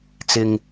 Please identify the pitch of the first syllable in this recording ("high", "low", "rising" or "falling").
low